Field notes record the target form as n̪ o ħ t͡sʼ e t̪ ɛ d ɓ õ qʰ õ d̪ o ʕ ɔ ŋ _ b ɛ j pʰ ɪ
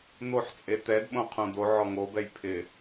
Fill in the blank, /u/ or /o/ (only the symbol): o